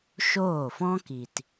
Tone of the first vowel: falling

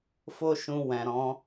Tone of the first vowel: high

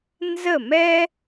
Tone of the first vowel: falling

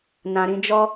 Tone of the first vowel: low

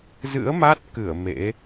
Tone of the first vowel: rising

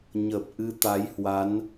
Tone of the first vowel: low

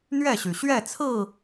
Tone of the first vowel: falling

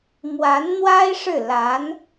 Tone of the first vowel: rising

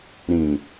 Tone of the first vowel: low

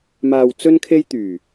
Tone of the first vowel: low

